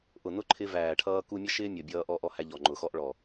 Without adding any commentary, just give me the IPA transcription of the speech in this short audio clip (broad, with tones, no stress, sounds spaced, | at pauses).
ʔ ʊ˨ n ʊ˦ ǃʰ ɪ˧ v æː˨ ʈʰ ʌː˧ k u˧ mʲ ʌ˦ ʃ ɪː˦ mʲ ɔ˨ bʲ ʌː˧ ʔ ɔ˧ ʔ ɔ˧ h æ˧ ʎ ɔ˨ ŋ͡ǃ ʊ˨ x ɔ˦ ʔ ɭ ɔ˨